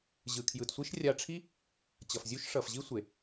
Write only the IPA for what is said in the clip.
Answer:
ʑɯ˨kʰjɯ˨tsʷi˦ʃ rʲa˧ʈ͡ʂʰi˦ | t͡ɕʌ˨fzʲu˦ʃ ʂʌ˨fʑi˦sʷe˨

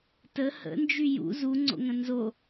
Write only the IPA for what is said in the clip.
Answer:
tə hə̰nd͡ʒy jṵ zuŋ͡ǀo̰ŋə̃ nzo

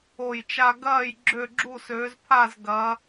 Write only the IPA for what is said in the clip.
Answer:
o˧˩jt͡ʃa˧ ɡɐː˧˩j ɡ͡ǁø˧˩ɡ͡ǁu˧˩søː˩˧zpʰa˧˩z ɡɐ˩˧

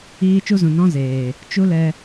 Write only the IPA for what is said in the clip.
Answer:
iː˧ t͡ʃu˧zũ˨nɔ̃˧ zeː˨ | t͡ʃu˦ lɛ˦

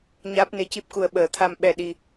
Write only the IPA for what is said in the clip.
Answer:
ɲaː˦˥p̚ne˧˥ci˦˥p̚ku˧ə̯ ɓəː˨˩˦t̪ʰa˧m ɓɛ˧ɗi˧

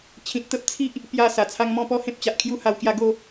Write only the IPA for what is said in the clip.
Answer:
t͡ɕʰĩ˨t̚t̪ə˦p̚t͡sʰi˦ʔ | pja˥˧sa˨˩t͡sʰa˦ŋ mɔ̃˥˧pɔ˦ hẽ˦p̚t͡ɕa˨ʔkʰju˦ ha˧wkja˥˧ ɡo˥˧

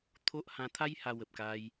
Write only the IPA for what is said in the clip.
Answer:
t̪ʰo˦ʔ hã˧t̪ʰa˦j ha˧wə˨p̚ka˧j

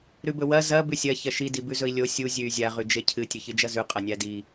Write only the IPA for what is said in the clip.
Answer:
ɾʉbɵwɐ zɐ bʉsʲɐ çɐʃi dibʉzɵi̯lʲo sʲu zʲʉy̯zʲa ʁʉd͡ʒecʰɨ tʲɵçɨd͡ʒɐzʉ qʼɐnʲadi

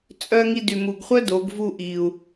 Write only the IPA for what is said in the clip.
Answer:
t͡sʼœ˧ ŋi˧dy˨mu˨ɡχʷœ˦ do˨˦ɡvu˦˨ʔi˨u̯

